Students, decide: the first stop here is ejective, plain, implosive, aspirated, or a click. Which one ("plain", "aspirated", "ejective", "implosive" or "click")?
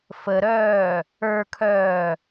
aspirated